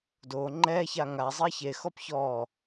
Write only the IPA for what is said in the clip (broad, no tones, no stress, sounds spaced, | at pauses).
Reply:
d o ŋ͡ǃ ɛ ç a ŋ a zˤ i ç e x ɔ p ç ɔ